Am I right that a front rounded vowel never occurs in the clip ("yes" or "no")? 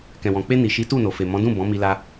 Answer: yes